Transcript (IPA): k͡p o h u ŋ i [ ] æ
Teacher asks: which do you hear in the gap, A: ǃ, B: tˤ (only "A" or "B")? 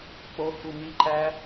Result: A